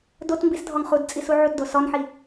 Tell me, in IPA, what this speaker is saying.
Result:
d o t m b i s dʱ ɔ ŋ χ u d t͡sʼ i s u ʕ u t d o s ɔ n ħ i

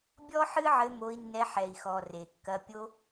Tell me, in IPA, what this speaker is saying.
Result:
bʲ ɔ˦ ħ ɨ˦ ʕ ɘ˧ m o˧ i̯ nː ɛ˧ ħ ɛ˨ i̯ x ɔ˨ r e˨ kː ɐ˧ pʲ o˧

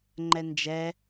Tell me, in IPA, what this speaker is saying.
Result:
ŋ͡ǃ ɛ n d͡ʒ ɛ

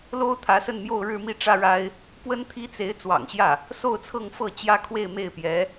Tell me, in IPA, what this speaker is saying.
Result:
l o˥ ʊ̯ t̪ʰ ä˧˥ s ə˥˧ n m j o˥˧ ʊ̯ ɻ ɻ̩˥˧ m i˥˩ ʈ͡ʂ ä˥ ɻ a˥ ɪ̯ | p w ə˥ n t̪ʰ i˥ t͡s e˧˥ ɪ̯ t͡s w ɑ̰˨˩ ŋ ɕ j ä˥˩ | s o˥˧ ʊ̯ t͡sʰ ɤ˥˧ ŋ f ɤ˥˩ t͡ɕ j ä˥ kʰ w e˥˧ ɪ̯ m e˥˩ ɪ̯ p j ɛ˧˥

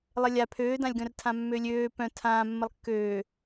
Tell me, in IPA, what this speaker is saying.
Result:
lˠ ə lʲ a pʰ øː d ã lʲ ɡ œ̃ r tʰ ã mː ø lʲ øː p œ̃ tʰ ãː mː ə lˠ kː øː

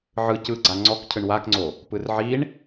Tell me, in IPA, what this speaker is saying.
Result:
ʕ ɯ c ɯ ɡ͡ǀ a ŋ͡ǀ ɔ k cʰ ɯ ɳ w a k ŋ͡ǀ o | p ɯ r ʕ i ɳ

